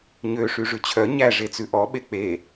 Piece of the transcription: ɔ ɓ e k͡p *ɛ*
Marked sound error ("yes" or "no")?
yes